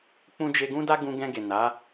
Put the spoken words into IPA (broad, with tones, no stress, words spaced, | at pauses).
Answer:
k͡pũ˦d͡ʒe˦ ɡũ˦da˦ɡũ˧ɡɛ̃˧ ɡe˨na˨˦